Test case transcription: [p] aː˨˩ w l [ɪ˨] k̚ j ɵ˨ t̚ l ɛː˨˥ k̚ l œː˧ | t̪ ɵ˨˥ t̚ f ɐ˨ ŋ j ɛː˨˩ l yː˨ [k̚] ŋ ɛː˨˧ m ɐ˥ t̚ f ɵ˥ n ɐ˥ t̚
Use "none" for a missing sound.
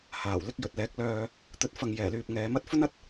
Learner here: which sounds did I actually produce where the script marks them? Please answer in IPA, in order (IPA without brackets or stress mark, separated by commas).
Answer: h, ɪ˧, p̚